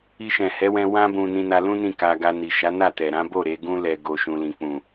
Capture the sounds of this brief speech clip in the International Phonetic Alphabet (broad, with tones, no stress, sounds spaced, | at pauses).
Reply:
i˧ ʃ ɛ̃˨ h ɛ˨˦ w ɛ̃˧ w ã˧ b ũ˨ n ĩ˧ n a˧ l ũ˦ n ĩ˦˨ k a˧ ɡ a˧ n i˨ ʃ a˨˦ n a˦˨ t ɛ˨ ɾ ã˨˦ b o˦˨ ɾ e˧ ɡ ũ˦ l ɛ˧ ɡ o˧ ʃ ũ˧ l ĩ˧ k͡p ũ˨